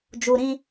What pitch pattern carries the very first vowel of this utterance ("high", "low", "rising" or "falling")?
low